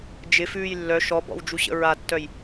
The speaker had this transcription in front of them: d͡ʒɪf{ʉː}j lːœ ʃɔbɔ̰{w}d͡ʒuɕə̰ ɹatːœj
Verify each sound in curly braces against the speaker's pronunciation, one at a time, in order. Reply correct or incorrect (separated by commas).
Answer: correct, correct